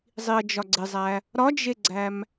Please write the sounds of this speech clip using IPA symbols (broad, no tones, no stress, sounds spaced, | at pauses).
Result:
zˤ i ɐ̯ d͡ʒ ɒ ɡ͡ǀ e zˤ æ | ɾ ɒ d͡ʒ e ɡ͡ǀ æ m